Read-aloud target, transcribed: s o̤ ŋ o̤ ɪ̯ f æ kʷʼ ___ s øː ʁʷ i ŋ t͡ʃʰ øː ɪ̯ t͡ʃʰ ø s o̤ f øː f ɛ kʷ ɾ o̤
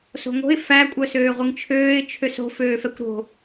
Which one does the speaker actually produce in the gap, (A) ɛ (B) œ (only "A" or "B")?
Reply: B